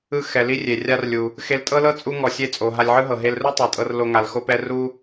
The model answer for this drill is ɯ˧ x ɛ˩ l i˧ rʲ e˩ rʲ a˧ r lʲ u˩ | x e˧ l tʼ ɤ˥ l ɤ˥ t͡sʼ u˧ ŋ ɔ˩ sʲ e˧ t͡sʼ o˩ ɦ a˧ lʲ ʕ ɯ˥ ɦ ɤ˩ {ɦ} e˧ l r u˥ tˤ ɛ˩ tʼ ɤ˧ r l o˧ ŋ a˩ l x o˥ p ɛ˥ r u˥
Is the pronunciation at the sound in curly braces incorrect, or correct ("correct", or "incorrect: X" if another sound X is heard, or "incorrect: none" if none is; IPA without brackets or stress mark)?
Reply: correct